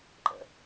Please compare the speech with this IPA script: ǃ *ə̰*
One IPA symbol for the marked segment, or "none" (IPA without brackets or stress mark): ə̰